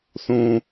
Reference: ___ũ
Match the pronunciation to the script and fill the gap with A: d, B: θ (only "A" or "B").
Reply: B